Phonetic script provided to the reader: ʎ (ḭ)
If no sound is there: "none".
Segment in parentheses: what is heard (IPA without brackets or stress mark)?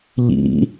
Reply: ḭ